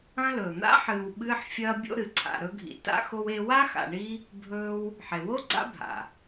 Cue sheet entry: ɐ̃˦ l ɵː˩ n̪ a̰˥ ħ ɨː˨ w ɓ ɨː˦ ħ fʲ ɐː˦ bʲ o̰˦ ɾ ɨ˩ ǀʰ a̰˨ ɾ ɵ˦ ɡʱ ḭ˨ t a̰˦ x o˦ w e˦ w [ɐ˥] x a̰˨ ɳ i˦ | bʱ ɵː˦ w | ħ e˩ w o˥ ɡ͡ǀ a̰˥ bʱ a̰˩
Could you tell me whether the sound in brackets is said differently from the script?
yes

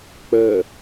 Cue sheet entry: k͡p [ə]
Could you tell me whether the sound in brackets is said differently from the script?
no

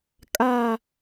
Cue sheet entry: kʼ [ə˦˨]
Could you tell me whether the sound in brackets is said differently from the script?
yes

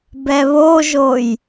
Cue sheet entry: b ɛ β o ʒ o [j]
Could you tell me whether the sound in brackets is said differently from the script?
no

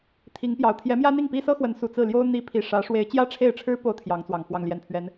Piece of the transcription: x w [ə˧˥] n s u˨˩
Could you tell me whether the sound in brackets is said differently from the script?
no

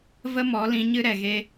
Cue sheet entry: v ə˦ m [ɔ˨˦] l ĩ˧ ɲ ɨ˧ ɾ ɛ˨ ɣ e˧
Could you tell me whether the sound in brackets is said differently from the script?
no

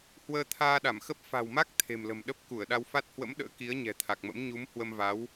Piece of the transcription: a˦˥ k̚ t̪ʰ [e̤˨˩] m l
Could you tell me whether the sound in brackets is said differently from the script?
no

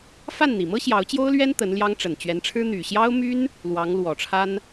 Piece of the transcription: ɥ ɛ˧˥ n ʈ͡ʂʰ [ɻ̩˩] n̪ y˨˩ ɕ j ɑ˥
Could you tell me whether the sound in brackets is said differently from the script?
yes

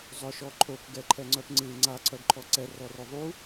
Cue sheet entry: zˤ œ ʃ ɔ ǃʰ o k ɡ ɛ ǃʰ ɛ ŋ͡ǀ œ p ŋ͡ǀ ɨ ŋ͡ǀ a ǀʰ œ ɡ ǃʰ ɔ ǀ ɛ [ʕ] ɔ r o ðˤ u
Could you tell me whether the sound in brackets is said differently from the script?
yes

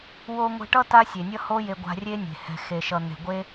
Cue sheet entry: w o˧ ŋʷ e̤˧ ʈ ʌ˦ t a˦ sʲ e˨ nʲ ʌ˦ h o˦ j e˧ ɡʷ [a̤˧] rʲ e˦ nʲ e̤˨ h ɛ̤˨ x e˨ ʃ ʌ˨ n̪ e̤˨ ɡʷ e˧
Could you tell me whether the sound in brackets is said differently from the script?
no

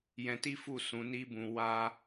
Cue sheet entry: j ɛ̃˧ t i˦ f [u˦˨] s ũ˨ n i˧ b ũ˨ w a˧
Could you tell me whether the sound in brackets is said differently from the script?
no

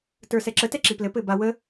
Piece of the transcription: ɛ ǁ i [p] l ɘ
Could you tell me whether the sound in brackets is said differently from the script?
no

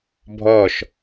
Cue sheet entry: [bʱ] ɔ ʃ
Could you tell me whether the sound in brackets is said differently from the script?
no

